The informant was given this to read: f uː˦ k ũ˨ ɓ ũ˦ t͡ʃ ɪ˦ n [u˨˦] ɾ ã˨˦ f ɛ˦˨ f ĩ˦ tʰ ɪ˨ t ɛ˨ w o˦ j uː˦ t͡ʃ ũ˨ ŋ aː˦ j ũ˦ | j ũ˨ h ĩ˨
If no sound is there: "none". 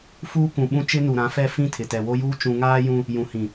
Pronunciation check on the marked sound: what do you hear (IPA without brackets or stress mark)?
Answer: u˨